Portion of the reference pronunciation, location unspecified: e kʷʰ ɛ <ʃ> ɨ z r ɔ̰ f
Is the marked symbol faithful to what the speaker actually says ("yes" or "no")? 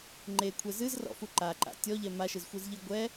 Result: no